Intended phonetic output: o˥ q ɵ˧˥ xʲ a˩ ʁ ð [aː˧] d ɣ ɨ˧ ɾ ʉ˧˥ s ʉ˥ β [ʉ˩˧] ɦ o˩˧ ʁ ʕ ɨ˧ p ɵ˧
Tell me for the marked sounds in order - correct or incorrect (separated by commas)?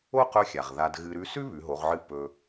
incorrect, correct